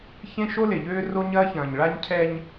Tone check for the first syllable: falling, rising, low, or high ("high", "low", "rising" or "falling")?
high